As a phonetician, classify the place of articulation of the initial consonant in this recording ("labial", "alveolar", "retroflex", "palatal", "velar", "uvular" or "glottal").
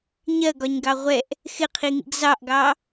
palatal